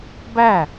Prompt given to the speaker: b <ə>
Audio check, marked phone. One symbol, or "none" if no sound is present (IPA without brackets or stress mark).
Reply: æ